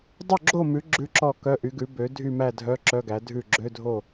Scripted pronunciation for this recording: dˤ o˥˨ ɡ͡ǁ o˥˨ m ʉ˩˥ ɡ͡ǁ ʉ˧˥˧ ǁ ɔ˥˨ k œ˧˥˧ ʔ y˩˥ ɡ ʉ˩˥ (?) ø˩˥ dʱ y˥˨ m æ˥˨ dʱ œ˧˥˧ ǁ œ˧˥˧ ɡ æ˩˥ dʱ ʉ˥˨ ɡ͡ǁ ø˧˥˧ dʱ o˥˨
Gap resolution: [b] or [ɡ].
b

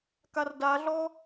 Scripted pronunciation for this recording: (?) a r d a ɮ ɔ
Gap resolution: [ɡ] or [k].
k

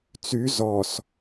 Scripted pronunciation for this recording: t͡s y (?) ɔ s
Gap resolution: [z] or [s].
z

